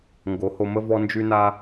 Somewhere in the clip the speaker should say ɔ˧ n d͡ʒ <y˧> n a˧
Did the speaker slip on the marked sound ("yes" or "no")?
no